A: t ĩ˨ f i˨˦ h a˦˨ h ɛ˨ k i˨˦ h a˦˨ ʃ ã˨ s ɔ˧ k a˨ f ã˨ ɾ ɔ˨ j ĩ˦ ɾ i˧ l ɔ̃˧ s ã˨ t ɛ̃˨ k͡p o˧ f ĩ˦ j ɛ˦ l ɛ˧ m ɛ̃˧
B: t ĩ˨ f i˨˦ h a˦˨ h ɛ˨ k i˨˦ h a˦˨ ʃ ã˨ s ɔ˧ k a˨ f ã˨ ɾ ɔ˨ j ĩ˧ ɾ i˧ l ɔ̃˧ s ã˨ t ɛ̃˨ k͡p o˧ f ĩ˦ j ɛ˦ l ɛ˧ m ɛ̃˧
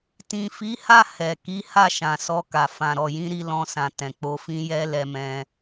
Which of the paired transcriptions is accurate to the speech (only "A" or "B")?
B